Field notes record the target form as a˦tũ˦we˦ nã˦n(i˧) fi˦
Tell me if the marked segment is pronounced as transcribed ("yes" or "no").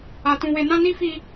no